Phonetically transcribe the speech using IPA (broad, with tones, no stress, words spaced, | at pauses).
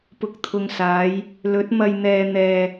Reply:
pʊ˨k̚t̪ʰʊ˨ŋsaː˨˧j | lɵ˨˥t̚ mɐ˧jn̪ɛː˧n̪ɛː˧